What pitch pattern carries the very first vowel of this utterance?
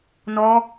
high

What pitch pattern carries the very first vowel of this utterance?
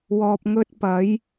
low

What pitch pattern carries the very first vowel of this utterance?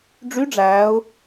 rising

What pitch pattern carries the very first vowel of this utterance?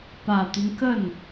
low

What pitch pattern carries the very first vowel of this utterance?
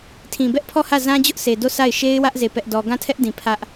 low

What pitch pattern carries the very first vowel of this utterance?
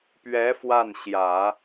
rising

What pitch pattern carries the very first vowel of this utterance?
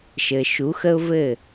low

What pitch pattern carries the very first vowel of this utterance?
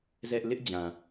high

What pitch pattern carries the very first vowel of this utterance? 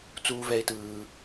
high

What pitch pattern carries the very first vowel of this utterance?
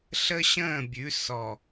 high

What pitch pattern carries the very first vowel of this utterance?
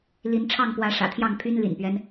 rising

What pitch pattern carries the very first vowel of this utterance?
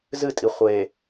falling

